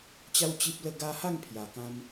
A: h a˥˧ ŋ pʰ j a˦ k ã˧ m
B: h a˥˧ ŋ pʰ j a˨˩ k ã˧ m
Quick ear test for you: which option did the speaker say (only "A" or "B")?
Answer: B